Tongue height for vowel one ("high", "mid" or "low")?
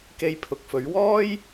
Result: mid